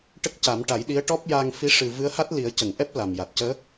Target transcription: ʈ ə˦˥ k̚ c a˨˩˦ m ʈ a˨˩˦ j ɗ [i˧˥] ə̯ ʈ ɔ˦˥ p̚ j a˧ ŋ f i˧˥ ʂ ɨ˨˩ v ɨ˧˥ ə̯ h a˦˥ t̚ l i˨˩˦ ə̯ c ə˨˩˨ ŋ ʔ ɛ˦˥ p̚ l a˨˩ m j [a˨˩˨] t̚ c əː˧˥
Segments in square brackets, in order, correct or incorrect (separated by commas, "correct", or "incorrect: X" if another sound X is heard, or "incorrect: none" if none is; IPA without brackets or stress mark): correct, incorrect: a˨˩